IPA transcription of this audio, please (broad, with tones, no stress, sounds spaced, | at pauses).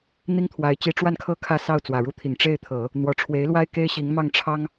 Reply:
n̪ i˥ ŋ t̪ʰ w a˧˥ ɪ̯ t͡ɕ i˧˥ ʈ͡ʂ w a˥˧ n kʰ ɤ˥˧ kʰ ä˥˧ s ɑ˥˩ ʊ̯ t͡s w ä˨˩ ɻ u˥ t̪ʰ i˨˩ ŋ ʈ͡ʂ e˥˩ ɪ̯ t̪ʰ ɤ˨˩˦ | n̪ w ɔ˨˩ ʈ͡ʂʰ w e˧˥ ɪ̯ l w a˥ ɪ̯ k e˥ ɪ̯ ɕ i˧˥ ŋ m ɑ˥˩ ŋ ʈ͡ʂʰ ɑ˥ ŋ